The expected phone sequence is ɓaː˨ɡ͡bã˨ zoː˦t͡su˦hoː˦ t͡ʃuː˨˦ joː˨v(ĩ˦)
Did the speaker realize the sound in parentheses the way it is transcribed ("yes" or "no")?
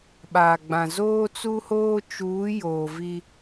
no